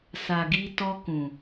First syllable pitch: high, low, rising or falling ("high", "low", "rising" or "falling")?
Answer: low